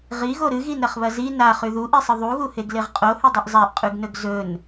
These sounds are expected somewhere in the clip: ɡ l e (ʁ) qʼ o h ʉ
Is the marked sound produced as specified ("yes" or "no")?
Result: yes